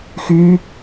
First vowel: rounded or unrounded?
rounded